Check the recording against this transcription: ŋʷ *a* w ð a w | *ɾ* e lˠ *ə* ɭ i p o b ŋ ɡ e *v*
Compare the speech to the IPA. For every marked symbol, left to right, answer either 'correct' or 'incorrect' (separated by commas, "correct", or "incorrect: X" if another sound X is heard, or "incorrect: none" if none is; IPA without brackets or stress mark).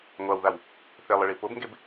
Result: correct, incorrect: θ, correct, incorrect: b